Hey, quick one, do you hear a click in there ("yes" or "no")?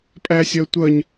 no